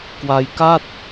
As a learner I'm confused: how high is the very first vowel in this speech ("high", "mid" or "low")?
low